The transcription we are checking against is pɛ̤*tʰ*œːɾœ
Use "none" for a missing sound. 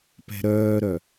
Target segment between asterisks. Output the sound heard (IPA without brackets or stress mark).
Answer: ɾ